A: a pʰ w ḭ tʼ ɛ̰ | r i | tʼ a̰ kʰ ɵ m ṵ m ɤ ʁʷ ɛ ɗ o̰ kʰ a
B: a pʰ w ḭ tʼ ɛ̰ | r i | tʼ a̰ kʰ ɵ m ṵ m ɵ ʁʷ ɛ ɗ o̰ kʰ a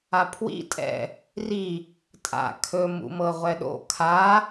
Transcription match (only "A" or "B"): A